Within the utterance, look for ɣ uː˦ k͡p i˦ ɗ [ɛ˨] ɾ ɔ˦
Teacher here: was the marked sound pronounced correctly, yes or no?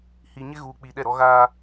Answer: no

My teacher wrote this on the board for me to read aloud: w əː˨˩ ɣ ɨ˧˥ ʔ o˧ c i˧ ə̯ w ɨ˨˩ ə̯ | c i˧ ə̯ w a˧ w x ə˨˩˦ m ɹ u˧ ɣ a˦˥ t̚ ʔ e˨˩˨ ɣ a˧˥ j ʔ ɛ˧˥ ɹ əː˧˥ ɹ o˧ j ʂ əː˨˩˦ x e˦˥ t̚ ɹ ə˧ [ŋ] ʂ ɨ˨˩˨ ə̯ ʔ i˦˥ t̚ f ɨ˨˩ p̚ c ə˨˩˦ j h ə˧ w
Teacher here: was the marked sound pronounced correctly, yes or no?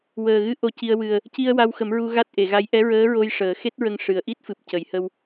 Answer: yes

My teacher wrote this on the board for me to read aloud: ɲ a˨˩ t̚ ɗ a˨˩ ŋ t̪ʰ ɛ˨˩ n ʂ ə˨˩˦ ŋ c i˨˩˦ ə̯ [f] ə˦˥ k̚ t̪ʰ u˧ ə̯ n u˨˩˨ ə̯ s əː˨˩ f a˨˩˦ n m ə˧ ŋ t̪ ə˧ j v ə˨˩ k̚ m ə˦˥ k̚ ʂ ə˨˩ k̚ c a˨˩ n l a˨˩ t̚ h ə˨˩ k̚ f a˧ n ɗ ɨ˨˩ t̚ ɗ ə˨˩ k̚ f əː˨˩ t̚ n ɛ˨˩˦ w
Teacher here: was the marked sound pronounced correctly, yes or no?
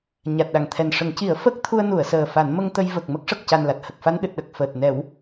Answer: yes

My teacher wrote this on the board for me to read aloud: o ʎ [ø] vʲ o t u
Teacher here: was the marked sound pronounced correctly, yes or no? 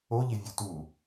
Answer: no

